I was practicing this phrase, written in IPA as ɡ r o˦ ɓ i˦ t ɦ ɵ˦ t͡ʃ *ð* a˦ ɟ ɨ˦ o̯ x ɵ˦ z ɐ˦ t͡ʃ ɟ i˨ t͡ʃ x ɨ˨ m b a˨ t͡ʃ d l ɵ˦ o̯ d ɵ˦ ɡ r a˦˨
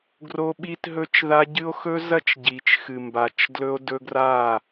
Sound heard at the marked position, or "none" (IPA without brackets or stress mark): ð